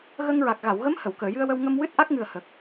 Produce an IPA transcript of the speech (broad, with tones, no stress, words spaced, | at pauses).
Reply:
ɣə˧ŋɹa˨˩k̚ ɣa˨˩˨wɣə˧˥m hə˨˩˨wkəː˨˩˨jɨ˧ə̯wə˧w ŋə˧mwɨ˦˥t̚ ʔa˦˥k̚ŋɨ˨˩ə̯ hə˨˩k̚